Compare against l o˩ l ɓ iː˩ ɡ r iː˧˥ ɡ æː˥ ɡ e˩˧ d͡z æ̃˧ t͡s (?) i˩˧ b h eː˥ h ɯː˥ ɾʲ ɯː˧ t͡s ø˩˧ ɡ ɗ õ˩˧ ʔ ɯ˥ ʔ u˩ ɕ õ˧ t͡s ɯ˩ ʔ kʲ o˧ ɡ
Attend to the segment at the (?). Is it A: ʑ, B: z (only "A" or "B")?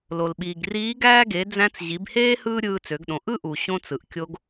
A